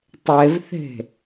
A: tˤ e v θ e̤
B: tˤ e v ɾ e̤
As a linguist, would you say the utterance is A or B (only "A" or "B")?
A